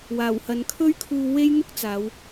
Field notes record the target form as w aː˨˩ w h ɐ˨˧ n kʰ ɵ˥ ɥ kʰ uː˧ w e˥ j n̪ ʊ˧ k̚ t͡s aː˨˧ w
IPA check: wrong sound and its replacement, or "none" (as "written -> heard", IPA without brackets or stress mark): ʊ˧ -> ʊ˥